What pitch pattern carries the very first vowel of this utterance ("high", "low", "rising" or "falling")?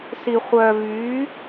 low